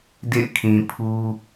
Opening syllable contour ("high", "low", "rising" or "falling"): falling